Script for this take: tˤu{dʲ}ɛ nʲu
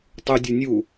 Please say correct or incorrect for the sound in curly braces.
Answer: correct